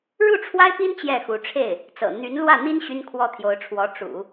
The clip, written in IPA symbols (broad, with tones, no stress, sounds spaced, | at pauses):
ɻ u˥˩ ʈ͡ʂʰ w a˥ ɪ̯ p i˥ n t͡ɕ j ɛ˥˩ x u˧˥ ʈ͡ʂʰ e˥˩ ɪ̯ | t͡s ɤ̰˨˩ n̪ y˧˥ n l w ä˥˩ n̪ i˥ n ɕ y˥ n kʰ w ɔ˥˩ t̪ʰ j o˧˥ ʊ̯ ʈ͡ʂʰ w ɔ˧˥ ʈ͡ʂ ṵ˨˩˦